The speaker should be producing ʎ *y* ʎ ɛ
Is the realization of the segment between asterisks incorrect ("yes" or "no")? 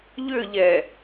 yes